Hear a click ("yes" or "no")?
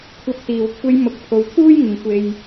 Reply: no